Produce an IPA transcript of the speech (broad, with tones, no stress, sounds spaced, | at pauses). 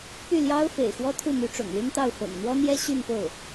p y˥˩ l j ɑ˥ ʊ̯ f ḛ˨˩ ɪ̯ x w ɔ˥ t̪ʰ u˥˩ m y˧˥ ʈ͡ʂ ʊ̰˨˩ ŋ l y˥ n t̪ ɑ˥˩ ʊ̯ f ɤ̰˨˩ ŋ n̪ w ɔ˥ n̪ j ɛ˥ ɕ y˥˧ n f o˥˩ ʊ̯